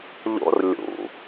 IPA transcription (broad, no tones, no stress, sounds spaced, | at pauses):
ʎ o̰ r lʲ ṵ